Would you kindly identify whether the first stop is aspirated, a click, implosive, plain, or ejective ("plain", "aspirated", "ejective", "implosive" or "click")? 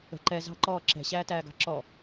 click